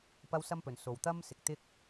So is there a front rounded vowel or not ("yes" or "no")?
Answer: no